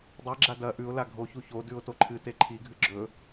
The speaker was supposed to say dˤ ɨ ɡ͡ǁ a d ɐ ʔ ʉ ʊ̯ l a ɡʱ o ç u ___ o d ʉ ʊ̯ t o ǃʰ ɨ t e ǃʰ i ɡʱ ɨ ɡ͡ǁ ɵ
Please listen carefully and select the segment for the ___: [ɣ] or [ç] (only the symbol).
ç